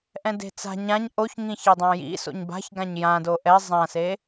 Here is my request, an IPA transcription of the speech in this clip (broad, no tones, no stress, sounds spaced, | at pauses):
ʔ ɛ̃ d e̤ t͡s a̤ ɲ ã ɲ ʔ o ç ŋ ĩ ç e dˤ ã j ḭ s o̰ ɲ b a̤ ç ɡ ã ɲ j ã d o ʔ ɛ zˤ ã s e